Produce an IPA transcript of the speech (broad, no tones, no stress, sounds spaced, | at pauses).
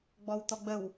ɡ͡b ɔ w t̪ ɔ ɡ͡b ə w